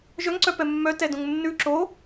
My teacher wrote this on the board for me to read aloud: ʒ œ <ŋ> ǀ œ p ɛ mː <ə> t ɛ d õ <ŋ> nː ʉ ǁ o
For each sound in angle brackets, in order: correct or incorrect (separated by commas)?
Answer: correct, incorrect, correct